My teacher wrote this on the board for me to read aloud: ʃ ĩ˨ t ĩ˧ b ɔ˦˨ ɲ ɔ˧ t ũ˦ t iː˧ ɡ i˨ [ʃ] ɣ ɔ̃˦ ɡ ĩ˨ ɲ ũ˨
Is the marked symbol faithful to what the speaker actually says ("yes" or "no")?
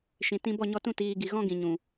no